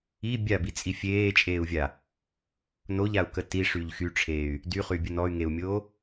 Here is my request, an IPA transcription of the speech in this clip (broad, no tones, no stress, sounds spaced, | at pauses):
i bʲ a b i t͡sʼ i fʲ eː t͡ʃʼ eː u̯ vʲ a | n o ʎ a u̯ k ə t i ʂ y ʎ x y ʈ͡ʂʰ eː y̯ | d y χ y bʲ ə n ɔ y̯ ŋ e u̯ mʲ oː